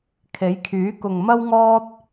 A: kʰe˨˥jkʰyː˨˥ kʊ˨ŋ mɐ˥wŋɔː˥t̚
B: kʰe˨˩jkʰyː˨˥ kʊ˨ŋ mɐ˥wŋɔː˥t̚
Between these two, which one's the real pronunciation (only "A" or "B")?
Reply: A